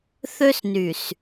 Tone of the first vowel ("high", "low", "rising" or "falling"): high